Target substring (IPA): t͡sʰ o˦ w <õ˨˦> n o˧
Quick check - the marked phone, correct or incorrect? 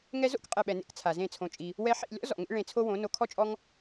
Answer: correct